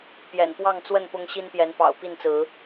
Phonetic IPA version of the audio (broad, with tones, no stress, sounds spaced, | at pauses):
p j ɛ̰˨˩ n p w ɑ˥˨ ŋ t͡s w ə˥˨ n p ʊ˦ ŋ ɕ i˦ n p j ɛ˨˦ n p ɑ̰˨˩ ʊ̯ p i˥˨ n t͡s ɹ̩˨˦